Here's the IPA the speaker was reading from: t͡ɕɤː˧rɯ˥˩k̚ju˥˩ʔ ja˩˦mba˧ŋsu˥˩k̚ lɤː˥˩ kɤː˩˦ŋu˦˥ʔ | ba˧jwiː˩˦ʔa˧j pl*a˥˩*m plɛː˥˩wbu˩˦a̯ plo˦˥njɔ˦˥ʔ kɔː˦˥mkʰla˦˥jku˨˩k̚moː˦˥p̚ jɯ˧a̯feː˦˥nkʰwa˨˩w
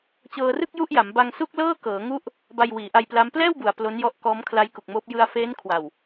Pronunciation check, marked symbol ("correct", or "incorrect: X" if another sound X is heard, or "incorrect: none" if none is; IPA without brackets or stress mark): incorrect: a˦˥